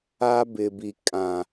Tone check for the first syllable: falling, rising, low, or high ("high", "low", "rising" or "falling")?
high